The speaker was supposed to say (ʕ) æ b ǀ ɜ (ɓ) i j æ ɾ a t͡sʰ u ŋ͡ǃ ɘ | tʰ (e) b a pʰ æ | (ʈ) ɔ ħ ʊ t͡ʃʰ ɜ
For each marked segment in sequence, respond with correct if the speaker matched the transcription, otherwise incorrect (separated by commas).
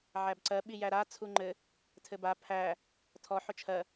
correct, correct, incorrect, incorrect